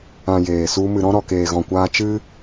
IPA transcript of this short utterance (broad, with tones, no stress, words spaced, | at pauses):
ã˨ jeː˨su˧ mɨ˨ɾɔ̃˧ ɾɔ˨keː˨ɣɔ̃˨kʷaː˧ t͡ʃɨ˦